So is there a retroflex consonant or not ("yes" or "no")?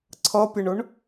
yes